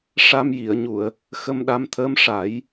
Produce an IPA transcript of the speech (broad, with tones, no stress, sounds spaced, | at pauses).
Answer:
ʂ a˧ m j i˨˩˨ ə̯ ɲ u˨˩˨ ə̯ | x ə˧ m ɗ a˧ m t̪ʰ əː˧˥ m ʂ a˨˩˦ j